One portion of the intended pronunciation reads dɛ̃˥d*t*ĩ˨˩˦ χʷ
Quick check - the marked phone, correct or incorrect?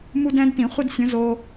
correct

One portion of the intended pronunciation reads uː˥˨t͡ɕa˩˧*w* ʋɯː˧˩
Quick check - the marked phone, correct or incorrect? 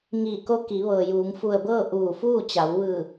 correct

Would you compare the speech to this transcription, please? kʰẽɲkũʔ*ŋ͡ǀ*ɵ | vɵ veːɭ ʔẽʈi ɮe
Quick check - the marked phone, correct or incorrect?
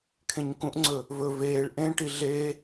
correct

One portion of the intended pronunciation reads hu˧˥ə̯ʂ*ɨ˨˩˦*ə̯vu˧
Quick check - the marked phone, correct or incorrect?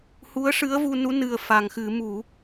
incorrect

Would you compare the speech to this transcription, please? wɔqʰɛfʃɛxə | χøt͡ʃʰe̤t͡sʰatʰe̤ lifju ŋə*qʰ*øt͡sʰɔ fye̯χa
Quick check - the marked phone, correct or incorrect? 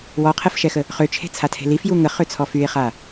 incorrect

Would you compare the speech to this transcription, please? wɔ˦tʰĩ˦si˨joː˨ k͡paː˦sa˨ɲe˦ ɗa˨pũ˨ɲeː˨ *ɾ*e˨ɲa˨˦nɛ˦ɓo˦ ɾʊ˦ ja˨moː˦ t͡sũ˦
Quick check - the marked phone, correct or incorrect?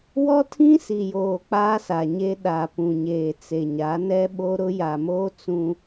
incorrect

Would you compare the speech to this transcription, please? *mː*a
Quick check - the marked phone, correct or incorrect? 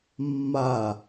correct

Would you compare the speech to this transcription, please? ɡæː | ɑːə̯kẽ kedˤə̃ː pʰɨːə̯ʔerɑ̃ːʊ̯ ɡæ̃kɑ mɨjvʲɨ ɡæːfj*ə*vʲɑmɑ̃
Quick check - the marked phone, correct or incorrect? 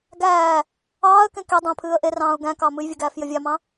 correct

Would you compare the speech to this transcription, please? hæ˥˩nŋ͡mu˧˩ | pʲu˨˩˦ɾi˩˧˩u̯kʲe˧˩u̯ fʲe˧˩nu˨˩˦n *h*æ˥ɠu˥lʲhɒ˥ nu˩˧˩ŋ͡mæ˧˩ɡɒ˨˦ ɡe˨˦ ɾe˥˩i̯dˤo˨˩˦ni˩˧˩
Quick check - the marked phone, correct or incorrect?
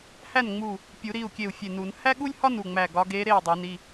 correct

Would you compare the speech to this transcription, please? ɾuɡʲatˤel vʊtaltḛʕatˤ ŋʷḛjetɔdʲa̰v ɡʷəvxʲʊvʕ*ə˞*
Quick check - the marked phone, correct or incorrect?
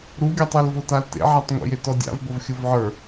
correct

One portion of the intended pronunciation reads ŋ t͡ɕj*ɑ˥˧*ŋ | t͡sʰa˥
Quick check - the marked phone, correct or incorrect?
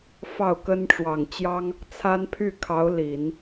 incorrect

